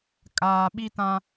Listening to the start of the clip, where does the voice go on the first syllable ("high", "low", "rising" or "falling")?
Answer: low